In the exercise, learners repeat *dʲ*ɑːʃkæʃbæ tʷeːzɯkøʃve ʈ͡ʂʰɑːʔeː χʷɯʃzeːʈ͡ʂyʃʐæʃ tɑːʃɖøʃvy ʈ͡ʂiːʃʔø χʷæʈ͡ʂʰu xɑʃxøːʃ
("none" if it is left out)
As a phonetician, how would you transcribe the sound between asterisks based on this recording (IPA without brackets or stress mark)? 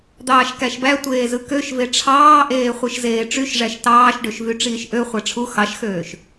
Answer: d̪